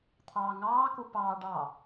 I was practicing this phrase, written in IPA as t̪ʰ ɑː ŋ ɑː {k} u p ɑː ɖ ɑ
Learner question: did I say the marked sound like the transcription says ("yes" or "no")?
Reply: yes